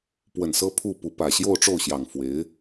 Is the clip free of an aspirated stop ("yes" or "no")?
no